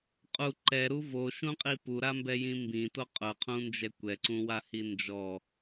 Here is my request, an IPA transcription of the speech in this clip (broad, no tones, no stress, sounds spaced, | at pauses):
qʼ u ǃ ɛ ɾ u v o ʃ ũ qʼ i p u ɾ a m b ɛ j ĩ m b ĩ t o qʼ ʊ qʰ ũ n d͡ʒ ɛ kʷ ɛ ǀ ũ w a h i n d͡ʒ ɔ